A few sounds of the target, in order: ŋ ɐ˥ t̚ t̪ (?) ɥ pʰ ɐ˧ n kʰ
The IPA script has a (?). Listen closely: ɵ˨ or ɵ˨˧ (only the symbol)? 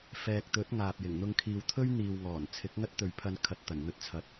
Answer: ɵ˨